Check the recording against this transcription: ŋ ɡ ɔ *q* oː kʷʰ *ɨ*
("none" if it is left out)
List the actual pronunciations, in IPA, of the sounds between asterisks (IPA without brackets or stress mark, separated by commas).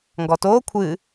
t, ɨ